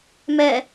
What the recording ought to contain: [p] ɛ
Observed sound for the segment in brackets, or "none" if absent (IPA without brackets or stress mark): m